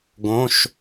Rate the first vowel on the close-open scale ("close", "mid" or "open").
mid